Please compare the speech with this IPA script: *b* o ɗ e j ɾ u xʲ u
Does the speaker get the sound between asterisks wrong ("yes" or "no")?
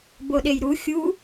no